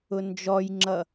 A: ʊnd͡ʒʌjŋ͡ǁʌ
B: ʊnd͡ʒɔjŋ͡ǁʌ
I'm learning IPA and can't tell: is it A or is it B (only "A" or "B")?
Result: B